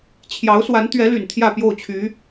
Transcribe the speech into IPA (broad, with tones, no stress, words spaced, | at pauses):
t͡ɕʰjɑ˧˥ʊ̯ swa˧˥nt̪ɥɛ˧˥ly̰˨˩n t̪ʰjä˥˧pjo˥˩ʊ̯t͡ɕʰy˧˥